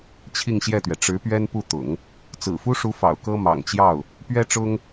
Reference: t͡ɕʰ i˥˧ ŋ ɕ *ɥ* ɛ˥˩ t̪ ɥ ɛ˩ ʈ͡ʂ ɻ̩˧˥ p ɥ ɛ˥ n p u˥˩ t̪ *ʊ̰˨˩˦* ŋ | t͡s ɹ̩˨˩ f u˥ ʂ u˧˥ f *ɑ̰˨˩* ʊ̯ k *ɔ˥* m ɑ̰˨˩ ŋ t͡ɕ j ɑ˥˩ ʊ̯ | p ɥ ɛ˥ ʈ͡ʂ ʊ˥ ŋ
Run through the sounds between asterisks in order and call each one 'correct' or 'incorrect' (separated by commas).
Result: incorrect, correct, correct, incorrect